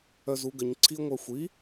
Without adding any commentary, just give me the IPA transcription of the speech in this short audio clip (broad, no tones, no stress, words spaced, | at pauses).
œzuɡəɲ ǀʰiə̯ŋʷœxʷi